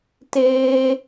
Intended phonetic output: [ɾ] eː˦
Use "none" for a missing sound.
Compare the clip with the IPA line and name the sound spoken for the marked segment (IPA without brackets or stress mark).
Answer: t